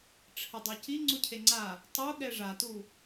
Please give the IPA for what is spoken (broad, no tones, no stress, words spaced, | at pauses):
ʈ͡ʂʰɘdˤuci ŋ͡ǀucʰeŋ͡ǀa | tˤu ɠɛʐatu